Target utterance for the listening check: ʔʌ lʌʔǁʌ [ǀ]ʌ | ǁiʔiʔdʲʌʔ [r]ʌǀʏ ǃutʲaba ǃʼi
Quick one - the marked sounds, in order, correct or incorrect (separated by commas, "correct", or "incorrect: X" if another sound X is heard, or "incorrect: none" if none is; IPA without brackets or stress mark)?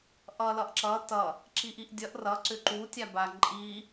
incorrect: t, correct